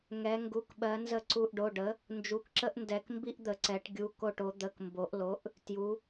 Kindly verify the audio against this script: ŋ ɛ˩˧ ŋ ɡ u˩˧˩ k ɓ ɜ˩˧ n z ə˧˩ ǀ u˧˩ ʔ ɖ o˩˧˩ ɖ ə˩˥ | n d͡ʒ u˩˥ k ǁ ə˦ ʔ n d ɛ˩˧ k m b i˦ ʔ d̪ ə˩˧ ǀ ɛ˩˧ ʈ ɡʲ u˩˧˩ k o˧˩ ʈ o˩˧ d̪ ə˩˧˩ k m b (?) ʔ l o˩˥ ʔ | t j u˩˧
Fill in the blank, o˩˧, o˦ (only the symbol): o˩˧